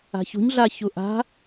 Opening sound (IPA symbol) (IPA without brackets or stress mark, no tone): a̤